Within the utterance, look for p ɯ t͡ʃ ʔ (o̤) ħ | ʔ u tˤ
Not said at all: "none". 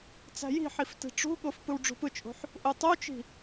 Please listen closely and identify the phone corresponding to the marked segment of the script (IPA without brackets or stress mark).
o̤